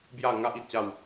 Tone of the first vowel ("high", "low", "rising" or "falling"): falling